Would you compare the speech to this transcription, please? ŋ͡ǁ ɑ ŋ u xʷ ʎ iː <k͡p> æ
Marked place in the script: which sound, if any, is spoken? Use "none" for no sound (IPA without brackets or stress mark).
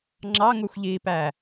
p